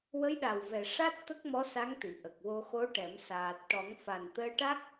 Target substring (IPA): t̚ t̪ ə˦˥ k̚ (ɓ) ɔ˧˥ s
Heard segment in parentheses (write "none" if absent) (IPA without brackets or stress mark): m